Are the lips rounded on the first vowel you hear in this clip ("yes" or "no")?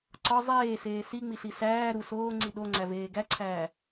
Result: yes